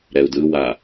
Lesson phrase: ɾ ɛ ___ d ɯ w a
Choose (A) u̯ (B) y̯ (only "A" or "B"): A